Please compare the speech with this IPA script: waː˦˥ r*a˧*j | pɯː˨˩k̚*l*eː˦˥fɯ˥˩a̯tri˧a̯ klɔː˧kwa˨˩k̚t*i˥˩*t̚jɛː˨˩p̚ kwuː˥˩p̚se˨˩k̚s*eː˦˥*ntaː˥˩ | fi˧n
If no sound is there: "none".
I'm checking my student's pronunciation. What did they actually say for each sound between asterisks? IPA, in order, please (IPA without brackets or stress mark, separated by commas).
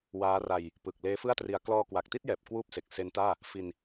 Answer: a˧, l, i˥˩, e˦˥